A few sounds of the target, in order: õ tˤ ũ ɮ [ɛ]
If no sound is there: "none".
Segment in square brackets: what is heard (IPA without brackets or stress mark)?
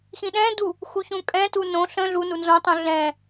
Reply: ɛ̃